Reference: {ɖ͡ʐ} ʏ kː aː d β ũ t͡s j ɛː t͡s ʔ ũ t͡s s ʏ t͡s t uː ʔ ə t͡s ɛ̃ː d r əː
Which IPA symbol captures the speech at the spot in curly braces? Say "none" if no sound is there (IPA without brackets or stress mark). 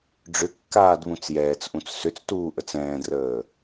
ɖ͡ʐ